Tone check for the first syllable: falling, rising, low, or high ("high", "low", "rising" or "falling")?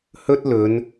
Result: high